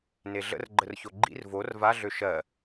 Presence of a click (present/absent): present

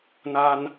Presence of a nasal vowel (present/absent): absent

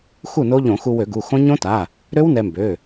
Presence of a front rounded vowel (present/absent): present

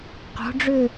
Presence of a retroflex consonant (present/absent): present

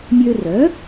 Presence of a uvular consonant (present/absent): absent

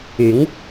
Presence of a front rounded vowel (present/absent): present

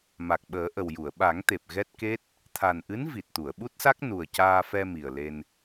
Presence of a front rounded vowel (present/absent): absent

